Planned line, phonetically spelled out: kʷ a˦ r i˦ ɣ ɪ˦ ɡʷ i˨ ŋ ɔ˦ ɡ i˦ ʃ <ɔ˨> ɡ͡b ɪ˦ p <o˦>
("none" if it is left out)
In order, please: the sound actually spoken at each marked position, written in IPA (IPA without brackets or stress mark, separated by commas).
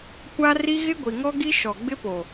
ɔ˨, o˨